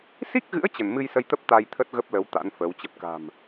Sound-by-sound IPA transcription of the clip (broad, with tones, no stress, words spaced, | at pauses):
si˦˥k̚ɣɨ̰˧˥ə̯ t͡ɕə˧˩n mɨ˧jsə˧jt̪ə˦˥p̚ t̪a˧jt̪ʰə˦˥t̚ɣə˦˥p̚lə˨˦w t̪a̰˧˥nfəː˨˦wt͡ɕə˦˥p̚ ka̤˨˩m